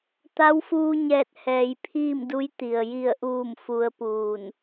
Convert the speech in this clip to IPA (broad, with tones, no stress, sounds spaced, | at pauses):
t̪ a˧˥ w f uː˧ ɲ ɛː˧˩ t̚ h ɛː˩ j pʰ iː˥˨ m d u˧˥ j t̪ i˩ ə̯ j i˧˩ ə̯ ʔ uː˧˩ m f u˧ ə̯ p uː˧˩ n